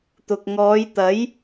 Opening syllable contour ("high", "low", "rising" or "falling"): low